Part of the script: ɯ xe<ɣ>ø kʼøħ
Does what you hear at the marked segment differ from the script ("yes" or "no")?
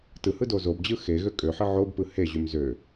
no